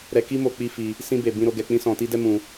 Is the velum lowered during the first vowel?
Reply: no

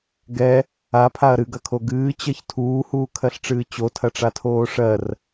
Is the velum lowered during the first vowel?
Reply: no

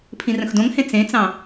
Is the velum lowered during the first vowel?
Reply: yes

